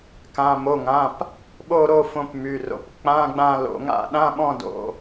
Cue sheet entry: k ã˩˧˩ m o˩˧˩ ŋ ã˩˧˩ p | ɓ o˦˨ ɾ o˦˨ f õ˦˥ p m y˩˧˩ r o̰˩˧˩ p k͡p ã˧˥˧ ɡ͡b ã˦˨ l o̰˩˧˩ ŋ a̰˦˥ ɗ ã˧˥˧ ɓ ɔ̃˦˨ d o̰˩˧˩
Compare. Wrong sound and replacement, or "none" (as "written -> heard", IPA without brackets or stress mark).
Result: none